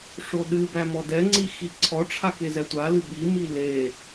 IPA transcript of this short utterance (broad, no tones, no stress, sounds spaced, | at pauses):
ʂ o ɗ ɨ b æ m ɔ d ɛ ŋ͡ǀ i x i ǀʰ ɔ ʈ͡ʂʰ a k e z ɛ tʷ a l ɨ ɓ i m i l e